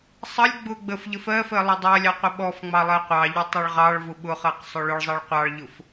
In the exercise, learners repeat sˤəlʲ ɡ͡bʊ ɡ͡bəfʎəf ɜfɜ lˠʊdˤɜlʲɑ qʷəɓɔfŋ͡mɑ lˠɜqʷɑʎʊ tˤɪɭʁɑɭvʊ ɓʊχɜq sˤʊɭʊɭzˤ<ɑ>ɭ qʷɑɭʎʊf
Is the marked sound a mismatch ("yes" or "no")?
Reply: no